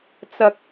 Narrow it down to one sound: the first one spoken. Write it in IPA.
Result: t͡s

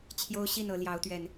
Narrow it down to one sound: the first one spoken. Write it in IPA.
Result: t͡ɕʰ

